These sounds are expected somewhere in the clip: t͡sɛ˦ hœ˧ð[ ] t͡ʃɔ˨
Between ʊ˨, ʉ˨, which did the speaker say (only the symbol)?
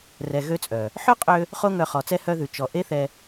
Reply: ʉ˨